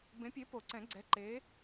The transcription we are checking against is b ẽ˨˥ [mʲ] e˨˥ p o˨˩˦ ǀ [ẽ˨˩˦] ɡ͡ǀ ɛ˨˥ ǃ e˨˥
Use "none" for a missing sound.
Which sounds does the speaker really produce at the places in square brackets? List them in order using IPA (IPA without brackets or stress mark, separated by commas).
pʲ, ɛ̃˨˩˦